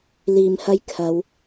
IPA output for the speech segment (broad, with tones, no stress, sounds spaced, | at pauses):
l iː˨ m h ɐ˧ j kʰ ɐ˨˧ w